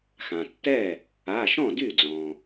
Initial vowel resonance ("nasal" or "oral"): nasal